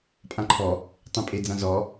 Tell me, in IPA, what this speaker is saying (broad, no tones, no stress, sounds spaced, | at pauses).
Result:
pʼ ã ǃʰ ɔ | tˤ ẽ pʼ e d͡z ã z ɔ